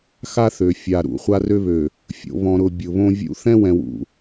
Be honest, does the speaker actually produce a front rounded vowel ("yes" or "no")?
yes